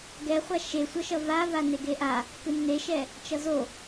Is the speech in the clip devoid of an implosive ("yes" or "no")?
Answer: yes